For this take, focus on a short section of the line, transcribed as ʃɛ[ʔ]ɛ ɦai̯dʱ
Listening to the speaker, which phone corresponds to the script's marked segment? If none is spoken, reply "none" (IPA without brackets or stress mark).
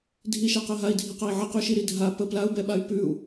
q